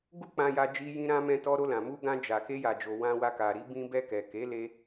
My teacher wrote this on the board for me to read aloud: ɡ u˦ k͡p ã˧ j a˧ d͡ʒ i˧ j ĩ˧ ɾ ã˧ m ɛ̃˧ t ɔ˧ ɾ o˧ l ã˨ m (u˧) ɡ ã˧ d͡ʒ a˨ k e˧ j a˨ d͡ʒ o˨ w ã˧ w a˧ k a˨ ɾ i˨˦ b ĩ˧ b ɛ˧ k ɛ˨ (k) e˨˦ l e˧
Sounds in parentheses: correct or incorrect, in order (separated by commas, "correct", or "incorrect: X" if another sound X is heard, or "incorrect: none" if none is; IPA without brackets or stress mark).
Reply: correct, correct